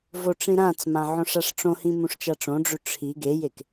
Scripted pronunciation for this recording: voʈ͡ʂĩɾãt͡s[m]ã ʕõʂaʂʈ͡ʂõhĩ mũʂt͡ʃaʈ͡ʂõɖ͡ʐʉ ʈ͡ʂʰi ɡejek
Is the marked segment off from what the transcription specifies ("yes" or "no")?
no